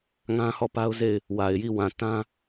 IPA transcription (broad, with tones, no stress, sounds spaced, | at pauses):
ŋ ã˦ h ɔ˦˨ p a˦ ʊ̯ z e˦˨ ɪ̯ | w a˨ ɪ̯ j i˦˨ w ã˨ t ã˦